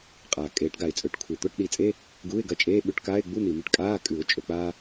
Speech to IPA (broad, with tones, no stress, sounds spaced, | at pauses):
qʼ aː˩ kʼ eː˨˩˦ ʈ ɡ a˩ ɪ̯ t͡sʼ ɵː˨˩˦ ʈ kʷʰ e˩ t̪ o˧˥˧ ʈ ɗ i˨˩˦ t͡sʼ e˧˥˧ | ɡ u˧˥˧ ɪ̯ ɡ ɐ˧ t͡ʃʼ eː˧˥˧ ɓ ʉ˧˥˧ ʈ k aː˧˥˧ ɪ̯ ɡ͡b u˧˥˧ n̪ i˩ m i˧ ʈ kʼ aː˧˥˧ kʼ ʉ˨˩˦ ʊ̯ t͡ʃʼ ɵ˩ k͡p aː˧